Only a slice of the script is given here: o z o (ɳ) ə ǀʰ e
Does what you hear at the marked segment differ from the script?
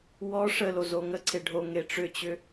yes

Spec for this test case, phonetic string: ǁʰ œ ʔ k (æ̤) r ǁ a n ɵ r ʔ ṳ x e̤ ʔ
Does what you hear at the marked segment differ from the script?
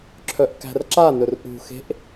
no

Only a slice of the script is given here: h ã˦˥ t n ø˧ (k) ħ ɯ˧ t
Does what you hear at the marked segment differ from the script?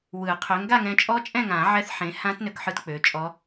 no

